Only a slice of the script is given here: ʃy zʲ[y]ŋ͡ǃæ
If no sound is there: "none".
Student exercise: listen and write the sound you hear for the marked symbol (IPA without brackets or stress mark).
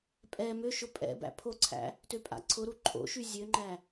ø